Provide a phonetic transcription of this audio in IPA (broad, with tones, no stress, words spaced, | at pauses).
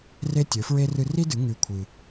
re˦tʲɵ˨˦fɹe˦ rɨ˧ri˦dɨ˨˦ ŋʉ˧kʷʰɨ˧